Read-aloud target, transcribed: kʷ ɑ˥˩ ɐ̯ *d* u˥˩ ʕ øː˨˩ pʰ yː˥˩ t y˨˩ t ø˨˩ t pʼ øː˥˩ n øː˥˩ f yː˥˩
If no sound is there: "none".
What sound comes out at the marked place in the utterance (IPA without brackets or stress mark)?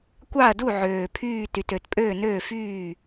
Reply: d